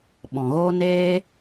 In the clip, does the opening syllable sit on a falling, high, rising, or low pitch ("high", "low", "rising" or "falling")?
low